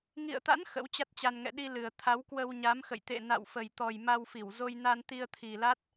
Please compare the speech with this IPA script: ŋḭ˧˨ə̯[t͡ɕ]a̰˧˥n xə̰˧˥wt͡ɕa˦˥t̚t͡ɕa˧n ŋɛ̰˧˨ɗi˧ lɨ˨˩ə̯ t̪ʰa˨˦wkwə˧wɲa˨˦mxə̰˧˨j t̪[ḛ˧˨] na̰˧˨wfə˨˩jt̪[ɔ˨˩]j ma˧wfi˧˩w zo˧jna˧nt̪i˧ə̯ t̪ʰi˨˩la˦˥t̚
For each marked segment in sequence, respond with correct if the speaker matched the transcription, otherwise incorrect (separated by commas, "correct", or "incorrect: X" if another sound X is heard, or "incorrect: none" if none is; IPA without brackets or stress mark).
incorrect: t̪, correct, correct